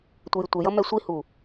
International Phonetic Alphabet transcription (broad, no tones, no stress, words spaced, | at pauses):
tʷəjɪtʷɪjʌ mɛsʷihu